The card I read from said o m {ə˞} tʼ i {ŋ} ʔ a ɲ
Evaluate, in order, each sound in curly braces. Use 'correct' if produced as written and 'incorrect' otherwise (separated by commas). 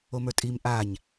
correct, incorrect